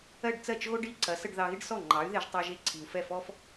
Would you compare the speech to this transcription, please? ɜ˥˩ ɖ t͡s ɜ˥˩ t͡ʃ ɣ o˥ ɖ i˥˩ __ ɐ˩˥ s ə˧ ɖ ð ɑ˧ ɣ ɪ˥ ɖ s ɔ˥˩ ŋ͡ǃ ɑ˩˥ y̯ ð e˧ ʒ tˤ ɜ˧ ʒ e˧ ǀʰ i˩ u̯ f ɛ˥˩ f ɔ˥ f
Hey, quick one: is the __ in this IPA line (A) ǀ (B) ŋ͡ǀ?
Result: A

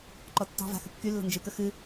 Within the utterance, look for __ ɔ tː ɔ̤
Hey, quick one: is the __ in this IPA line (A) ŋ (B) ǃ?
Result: B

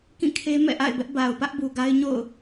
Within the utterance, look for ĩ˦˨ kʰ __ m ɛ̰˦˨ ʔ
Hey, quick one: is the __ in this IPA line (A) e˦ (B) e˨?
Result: A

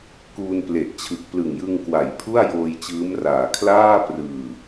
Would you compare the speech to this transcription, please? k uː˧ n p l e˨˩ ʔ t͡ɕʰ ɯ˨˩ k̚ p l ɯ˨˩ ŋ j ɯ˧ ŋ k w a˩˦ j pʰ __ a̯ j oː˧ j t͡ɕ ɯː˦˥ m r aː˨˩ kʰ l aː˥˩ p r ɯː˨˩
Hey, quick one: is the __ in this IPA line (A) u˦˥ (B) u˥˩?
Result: B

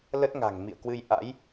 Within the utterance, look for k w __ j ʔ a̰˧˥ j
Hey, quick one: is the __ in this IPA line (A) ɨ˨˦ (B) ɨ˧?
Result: B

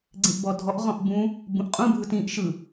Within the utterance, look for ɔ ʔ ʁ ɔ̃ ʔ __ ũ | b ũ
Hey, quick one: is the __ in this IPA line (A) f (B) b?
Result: B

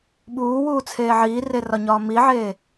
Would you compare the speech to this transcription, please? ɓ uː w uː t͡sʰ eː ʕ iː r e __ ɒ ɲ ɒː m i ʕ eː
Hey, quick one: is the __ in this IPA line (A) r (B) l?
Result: A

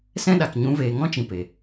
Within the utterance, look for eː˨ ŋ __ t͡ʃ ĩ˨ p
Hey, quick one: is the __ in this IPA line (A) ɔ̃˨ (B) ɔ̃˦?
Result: B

